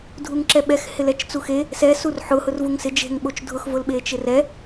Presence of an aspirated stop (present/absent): absent